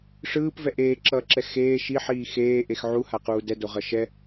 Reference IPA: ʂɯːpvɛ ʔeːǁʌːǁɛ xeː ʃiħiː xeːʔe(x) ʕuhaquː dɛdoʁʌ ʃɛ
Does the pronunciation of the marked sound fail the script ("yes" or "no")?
no